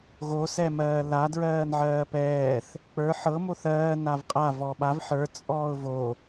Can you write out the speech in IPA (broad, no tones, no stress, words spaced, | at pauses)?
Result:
ɣosɛmɜː ladɹɜːnʕɜː pɛːθ | k͡pə˞ ħɤ moθɜː navqʼa vɔɓav ħə˞ t͡sʼɔːʊ̯vo